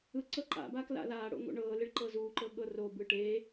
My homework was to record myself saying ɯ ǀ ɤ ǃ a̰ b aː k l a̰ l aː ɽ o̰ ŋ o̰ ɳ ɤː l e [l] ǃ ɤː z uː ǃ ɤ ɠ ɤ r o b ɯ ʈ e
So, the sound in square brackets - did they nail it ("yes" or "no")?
no